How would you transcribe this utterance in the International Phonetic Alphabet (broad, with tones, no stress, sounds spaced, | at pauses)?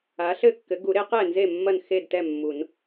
a˨˥ ɬ ɘ˥˨ kː ɘ˨˥ ɡ u˨˩˦ ɾ e˨˥ q ɛ˥˨ n z e˥˨ mː ɐ˥˨ n x e˥˨ d t ɛ˥˨ mː u˨˩˦ n